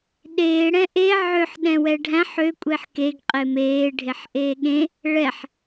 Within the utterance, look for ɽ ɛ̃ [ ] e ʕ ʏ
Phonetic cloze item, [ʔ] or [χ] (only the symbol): ʔ